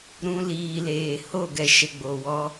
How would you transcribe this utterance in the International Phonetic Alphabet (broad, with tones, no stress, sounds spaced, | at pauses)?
ɾ ũ˧ l iː˨ l eː˨ h o˦˨ ɡ ɛ˨ ʃ ə˨ ɡ͡b o˨ w ɔ˧